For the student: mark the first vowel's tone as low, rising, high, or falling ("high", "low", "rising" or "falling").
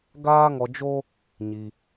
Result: high